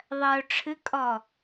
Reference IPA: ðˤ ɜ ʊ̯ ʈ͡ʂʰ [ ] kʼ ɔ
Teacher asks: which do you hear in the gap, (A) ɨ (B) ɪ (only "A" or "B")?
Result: A